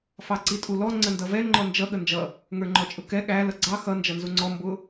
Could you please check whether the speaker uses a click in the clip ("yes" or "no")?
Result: yes